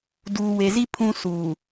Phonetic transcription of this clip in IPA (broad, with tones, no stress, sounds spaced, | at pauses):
d uː˨ w e˨ z i˦ pʰ ũ˦ s uː˨